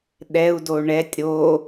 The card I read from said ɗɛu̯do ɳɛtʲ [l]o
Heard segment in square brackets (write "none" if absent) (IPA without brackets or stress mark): ɾ